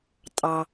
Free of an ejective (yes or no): no